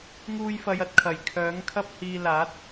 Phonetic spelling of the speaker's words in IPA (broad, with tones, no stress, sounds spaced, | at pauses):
ŋ uː˧ j f ɐ˨˧ j ɐ˧ t̚ kʰ ɐ˨˩ j kʰ œː˨˥ ŋ kʰ ɐ˥ p̚ h iː˧ l aː˨˥ t̚